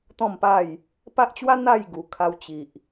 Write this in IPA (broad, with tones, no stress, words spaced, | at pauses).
t̪ɔ̃˥˧mpa˥˧j | pa˦ʔt͡ɕwa˦ n̪a˥˧j ɡu˨˩kʰa˧wt͡ɕi˨ʔ